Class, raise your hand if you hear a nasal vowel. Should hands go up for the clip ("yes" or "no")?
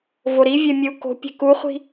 no